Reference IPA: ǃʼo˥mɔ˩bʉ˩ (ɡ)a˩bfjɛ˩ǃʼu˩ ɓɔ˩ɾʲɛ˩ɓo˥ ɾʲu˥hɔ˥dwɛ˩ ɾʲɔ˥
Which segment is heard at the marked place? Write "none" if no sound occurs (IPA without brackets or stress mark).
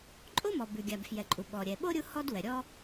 ɡʲ